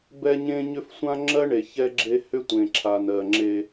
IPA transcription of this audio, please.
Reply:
b ɛ˦ ɲ ẽ˦ ɲ ʏ˦ f sʷ ã˦ ŋ͡ǁ ɜ˦ ɳ e˨ ç ɛ˦ ɡ͡ǁ e˦ h ʏ˦ tʷ ẽ˨ ǁʰ a˨ n ɜ˨ ŋ͡ǁ e˦

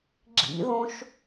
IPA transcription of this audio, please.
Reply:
ɡ͡ǁ ḭ ð õ ʃ

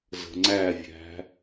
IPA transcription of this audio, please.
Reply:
z ə̤ ŋ͡ǀ æ vʲ æ̤

